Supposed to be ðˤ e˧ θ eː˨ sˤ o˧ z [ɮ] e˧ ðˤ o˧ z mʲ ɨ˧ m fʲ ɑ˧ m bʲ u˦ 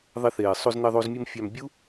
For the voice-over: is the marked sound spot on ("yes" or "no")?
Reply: no